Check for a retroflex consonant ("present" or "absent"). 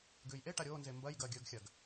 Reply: present